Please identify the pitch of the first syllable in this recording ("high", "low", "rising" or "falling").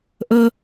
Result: high